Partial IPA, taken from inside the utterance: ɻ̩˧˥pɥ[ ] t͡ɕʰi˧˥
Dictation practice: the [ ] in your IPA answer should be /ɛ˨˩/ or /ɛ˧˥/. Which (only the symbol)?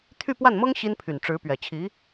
ɛ˨˩